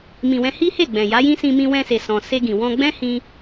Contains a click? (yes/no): no